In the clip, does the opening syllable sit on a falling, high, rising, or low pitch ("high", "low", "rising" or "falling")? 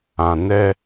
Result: low